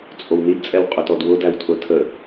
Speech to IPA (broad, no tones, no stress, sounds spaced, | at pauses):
t͡sʼ o w n i d t͡sʼ ɛ w qʼ ʊ t ɔ d w ʊ d æ w tʰ ʊ tʰ ə